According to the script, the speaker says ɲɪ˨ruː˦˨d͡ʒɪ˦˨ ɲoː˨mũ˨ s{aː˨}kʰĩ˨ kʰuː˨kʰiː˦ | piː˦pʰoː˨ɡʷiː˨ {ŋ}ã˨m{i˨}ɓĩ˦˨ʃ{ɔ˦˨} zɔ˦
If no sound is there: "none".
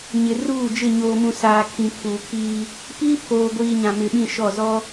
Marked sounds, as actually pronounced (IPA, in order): aː˨, ɲ, ɪ˨, ɔ˦˨

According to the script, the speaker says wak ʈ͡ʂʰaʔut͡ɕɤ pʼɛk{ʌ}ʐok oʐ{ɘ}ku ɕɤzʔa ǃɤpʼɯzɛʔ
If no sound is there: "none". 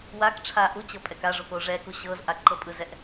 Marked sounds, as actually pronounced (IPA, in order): a, ɛ

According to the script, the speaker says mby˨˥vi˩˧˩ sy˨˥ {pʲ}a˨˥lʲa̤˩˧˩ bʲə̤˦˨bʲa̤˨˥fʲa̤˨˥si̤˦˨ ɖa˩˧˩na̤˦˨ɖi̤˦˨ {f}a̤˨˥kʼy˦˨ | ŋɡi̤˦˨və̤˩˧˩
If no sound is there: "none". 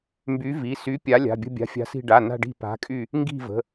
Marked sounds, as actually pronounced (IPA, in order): pʲ, p

